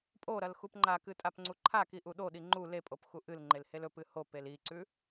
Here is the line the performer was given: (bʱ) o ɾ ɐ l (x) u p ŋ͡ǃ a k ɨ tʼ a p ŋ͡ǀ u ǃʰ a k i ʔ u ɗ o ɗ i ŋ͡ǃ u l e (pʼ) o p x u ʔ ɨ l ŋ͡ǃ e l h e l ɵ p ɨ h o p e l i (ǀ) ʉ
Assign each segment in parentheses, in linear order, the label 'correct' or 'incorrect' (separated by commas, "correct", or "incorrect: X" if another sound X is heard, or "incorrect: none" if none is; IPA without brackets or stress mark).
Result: incorrect: pʼ, correct, correct, correct